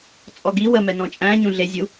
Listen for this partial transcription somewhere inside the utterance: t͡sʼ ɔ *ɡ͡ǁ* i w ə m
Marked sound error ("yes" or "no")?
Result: yes